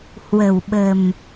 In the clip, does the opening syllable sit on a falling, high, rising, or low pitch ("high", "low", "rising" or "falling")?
low